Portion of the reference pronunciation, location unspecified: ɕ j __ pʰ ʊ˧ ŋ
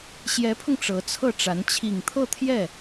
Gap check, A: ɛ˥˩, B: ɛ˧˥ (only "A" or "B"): B